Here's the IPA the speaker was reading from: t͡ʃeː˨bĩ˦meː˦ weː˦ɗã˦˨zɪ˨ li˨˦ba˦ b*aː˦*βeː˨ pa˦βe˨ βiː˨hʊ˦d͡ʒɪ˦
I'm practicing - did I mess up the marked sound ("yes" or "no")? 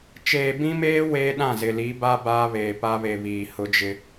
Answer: no